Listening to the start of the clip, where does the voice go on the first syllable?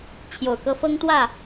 low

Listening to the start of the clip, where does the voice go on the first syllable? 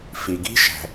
low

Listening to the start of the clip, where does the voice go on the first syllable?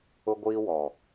high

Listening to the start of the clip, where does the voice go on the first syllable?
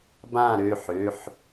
falling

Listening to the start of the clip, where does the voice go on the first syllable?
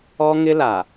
high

